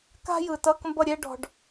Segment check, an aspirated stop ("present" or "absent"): absent